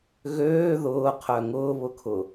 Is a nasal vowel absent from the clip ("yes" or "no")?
yes